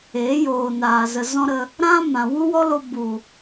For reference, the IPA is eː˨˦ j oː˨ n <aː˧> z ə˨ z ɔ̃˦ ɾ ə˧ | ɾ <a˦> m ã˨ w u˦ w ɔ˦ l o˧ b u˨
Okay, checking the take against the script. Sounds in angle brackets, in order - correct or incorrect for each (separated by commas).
incorrect, incorrect